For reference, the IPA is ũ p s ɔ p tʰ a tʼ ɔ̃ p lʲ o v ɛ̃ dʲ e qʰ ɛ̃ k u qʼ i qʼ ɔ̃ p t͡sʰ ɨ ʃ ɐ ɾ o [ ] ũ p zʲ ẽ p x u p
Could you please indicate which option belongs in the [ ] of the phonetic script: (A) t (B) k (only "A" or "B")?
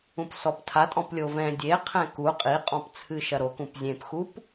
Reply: B